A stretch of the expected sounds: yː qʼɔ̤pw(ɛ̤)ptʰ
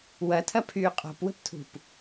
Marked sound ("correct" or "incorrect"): incorrect